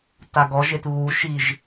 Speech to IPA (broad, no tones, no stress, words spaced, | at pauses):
taɡɔʒet βuʃiʒ